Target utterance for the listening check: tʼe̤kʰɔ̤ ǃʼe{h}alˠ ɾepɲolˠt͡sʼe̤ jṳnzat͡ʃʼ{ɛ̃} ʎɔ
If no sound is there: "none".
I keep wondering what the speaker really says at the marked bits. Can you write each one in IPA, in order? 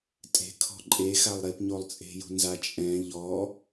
x, ɛ̃

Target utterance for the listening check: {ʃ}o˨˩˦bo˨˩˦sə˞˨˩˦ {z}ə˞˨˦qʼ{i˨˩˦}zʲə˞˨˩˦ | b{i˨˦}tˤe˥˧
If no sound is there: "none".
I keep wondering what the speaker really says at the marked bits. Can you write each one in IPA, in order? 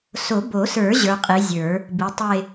s, ʑ, i˨˦, i˨˦

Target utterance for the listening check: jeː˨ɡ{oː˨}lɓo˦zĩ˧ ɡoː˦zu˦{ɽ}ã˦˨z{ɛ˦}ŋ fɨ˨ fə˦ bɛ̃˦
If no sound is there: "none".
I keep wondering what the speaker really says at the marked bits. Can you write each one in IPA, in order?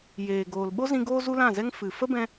oː˨, l, ɛ˦

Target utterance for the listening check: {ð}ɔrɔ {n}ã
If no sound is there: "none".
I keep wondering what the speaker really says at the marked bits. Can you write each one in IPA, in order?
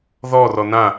ð, n

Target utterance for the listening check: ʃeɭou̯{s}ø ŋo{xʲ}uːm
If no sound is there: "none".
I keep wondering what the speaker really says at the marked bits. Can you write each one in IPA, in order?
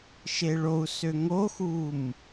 s, x

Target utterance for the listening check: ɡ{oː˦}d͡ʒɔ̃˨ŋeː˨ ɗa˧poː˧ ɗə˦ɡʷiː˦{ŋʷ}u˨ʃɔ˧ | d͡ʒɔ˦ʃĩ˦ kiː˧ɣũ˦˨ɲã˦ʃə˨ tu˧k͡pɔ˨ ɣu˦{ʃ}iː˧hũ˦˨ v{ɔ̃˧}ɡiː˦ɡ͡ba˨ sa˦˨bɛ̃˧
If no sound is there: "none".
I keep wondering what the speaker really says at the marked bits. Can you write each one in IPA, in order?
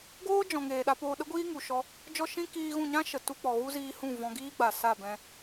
oː˦, ŋ, z, ɔ̃˧

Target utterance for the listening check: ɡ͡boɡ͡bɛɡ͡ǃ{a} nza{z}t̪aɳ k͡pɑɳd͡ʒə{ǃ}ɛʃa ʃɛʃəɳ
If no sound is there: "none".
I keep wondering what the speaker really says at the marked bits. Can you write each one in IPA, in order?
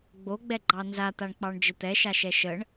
ɑ, none, t̪

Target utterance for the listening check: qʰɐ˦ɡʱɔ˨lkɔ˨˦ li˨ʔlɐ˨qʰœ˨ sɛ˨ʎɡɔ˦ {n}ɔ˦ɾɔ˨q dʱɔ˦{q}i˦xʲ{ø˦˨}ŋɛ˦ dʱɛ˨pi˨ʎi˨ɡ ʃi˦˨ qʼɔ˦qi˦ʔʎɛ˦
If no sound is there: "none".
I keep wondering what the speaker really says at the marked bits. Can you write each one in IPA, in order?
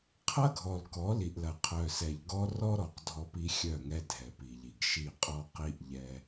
r, p, œ˦˨

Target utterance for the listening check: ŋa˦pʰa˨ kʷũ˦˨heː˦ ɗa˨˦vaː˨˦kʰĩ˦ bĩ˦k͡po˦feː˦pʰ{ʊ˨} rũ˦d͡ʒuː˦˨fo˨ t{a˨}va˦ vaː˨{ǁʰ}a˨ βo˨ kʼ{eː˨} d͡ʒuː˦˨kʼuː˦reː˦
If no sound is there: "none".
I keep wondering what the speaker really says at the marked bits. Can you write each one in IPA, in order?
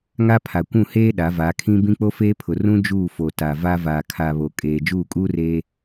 ʊ˨, a˨, kʰ, eː˨

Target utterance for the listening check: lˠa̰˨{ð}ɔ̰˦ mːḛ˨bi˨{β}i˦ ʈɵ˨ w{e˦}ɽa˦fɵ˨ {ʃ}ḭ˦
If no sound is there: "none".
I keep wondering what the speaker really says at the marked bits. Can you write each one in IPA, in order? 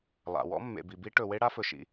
w, b, e˦, ʃ

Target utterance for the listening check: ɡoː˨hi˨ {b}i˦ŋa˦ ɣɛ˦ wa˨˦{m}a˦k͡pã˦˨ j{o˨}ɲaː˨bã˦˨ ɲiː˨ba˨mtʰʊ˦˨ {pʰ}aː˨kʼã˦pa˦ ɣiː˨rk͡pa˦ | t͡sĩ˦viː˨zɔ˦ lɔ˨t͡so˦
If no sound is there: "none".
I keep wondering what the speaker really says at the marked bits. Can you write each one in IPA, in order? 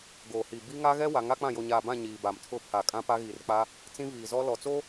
b, ŋ, o˨, pʰ

